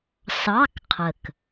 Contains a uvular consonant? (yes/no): yes